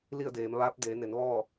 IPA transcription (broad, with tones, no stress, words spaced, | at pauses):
li˥˨ə̯ deː˩˧mʋaː˧˥p̚ deː˩˧ne˩˧n ʋɔː˥˨